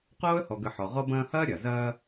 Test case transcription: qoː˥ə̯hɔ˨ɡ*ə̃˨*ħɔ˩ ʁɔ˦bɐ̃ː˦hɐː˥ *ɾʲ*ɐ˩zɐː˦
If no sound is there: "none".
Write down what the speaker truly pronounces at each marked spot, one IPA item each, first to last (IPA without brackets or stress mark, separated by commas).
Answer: ə˨, ɾʲ